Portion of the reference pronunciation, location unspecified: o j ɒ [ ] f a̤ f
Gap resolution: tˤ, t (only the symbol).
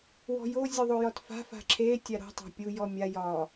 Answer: t